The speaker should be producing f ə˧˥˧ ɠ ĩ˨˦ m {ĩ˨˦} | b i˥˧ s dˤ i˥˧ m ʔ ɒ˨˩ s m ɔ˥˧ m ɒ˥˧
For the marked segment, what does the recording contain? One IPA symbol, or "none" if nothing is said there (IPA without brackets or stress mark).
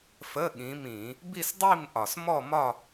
ĩ˧˩˧